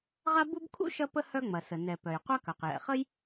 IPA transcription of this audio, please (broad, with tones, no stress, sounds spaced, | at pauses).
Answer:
ʁ a˥ b u˥ b kʰ ṵ˥ ʃ ɐ˥ p ə˥ h œ˥ ŋ͡m ɐ˩ s ə˩ n ɛ˩ p œ˩ j qʷ a˥ k œ˩ q j ɛ̰˩ χ ə˥ j